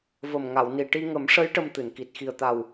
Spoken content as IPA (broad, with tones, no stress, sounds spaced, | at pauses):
v ə˨˩ m ŋ a˨˩˨ w n i˨˩ ʈ i˧ ŋ ə˨˩˦ m ʂ ə˧˥ j ʈ ə˧ m t̪ ɨ˨˩˨ n k i˨˩ t̚ x i˨˩ ə̯ t̪ a˨˩ w